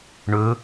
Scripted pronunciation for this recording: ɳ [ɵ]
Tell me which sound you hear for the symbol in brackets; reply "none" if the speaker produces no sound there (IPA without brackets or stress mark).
ɵ